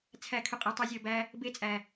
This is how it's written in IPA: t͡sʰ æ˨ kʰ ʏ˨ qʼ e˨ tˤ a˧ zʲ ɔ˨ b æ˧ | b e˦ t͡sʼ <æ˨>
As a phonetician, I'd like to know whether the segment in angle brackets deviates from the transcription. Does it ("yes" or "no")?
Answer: no